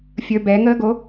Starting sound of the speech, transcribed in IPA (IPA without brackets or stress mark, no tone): fʲ